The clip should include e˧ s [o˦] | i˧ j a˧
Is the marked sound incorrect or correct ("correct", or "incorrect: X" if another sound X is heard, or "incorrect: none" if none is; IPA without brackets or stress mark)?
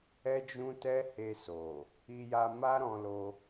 incorrect: o˨